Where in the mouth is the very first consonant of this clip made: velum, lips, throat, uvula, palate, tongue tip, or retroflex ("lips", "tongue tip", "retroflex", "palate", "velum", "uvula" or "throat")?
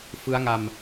lips